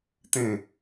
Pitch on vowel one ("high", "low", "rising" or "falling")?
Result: falling